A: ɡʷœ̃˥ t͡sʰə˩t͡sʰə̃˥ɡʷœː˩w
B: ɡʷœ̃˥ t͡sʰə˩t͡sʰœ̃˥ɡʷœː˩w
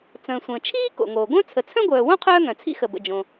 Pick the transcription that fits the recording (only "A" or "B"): B